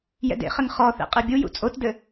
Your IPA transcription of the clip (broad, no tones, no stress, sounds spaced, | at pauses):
j ɛ̰ d ḛ χ ɘ ŋ χ ɔ θ ḛ qʼ e bʲ u j ṵ t͡sʼ o t d ɘ